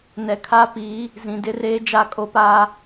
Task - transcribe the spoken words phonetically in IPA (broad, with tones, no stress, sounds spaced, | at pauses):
n ɛ˨ kʰ a˦ p iː˨˦ | z ĩ˨ d ɪ˦ r eː˦ d͡ʒ a˦˨ kʼ o˦ p aː˦